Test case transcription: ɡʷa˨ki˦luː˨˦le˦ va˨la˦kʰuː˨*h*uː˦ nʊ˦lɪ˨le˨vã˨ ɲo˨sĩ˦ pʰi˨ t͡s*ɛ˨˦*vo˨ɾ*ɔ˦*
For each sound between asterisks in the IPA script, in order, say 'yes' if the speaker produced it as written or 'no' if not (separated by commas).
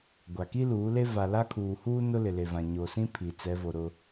yes, yes, no